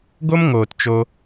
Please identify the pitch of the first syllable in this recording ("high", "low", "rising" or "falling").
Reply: high